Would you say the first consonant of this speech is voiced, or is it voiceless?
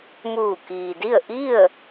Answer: voiced